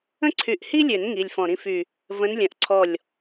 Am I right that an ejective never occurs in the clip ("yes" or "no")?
yes